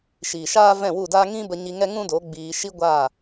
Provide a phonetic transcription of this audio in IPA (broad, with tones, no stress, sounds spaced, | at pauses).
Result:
ʃ iː˨ ʃ aː˦ v ɛ̃˦˨ w u˦˨ d aː˦ ŋ ĩ˦ b ə˧ ɲ i˧ ŋ ɛ˦ ŋ ũ˦ d o˨˦ ɡ͡b iː˧ ʃ i˦ ɡʷ aː˦˨